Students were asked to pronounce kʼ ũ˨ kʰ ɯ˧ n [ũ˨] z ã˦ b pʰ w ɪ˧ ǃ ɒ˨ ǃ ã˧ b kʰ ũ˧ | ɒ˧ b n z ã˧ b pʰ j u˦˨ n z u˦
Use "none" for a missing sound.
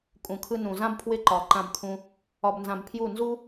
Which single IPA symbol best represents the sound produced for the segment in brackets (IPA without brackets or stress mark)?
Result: ũ˨